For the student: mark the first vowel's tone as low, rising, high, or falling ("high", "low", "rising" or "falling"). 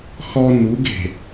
high